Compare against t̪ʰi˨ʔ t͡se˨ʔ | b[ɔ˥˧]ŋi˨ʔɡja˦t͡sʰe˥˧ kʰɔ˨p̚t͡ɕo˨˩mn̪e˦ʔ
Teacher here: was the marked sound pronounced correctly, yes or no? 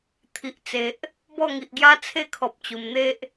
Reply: yes